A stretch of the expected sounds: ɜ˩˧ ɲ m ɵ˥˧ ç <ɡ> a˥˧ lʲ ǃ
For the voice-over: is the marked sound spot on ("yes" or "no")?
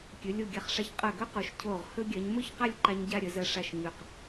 no